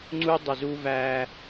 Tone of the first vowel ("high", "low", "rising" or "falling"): high